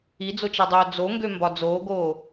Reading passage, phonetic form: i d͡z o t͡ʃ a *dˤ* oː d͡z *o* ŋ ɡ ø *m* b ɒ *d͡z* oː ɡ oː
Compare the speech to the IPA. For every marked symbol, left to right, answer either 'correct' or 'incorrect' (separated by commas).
correct, correct, correct, correct